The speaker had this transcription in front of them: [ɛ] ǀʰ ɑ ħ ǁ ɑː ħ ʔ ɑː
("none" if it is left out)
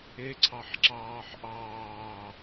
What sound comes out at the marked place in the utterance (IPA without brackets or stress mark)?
e